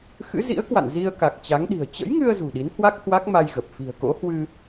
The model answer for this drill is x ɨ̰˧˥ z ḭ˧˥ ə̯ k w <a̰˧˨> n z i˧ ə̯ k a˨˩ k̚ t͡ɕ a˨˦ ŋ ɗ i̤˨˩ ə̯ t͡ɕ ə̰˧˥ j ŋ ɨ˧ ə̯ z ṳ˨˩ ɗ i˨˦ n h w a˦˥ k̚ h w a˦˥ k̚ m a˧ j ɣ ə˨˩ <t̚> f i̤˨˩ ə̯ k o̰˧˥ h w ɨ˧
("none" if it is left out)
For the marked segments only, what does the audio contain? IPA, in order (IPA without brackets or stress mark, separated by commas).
a̰˧˨, p̚